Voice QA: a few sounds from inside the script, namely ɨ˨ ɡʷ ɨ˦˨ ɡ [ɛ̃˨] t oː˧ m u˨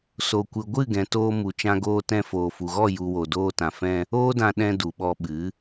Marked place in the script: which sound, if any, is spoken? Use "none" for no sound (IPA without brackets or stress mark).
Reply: ɛ̃˨